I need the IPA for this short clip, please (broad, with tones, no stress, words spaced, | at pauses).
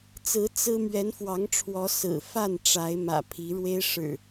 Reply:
t͡sɹ̩˨˦ t͡sɹ̩˦ mɥɛ˨˦nfwɑ˨˦ŋʈ͡ʂʰwɔ˨˦ sɹ̩˨˩fa˥˨n ʈ͡ʂa˨˦ɪ̯mä̰˨˩ pʰi˨˦ɻwe˦ɪ̯ʂɻ̩˨˩